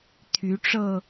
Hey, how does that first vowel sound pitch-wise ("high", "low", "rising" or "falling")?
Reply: rising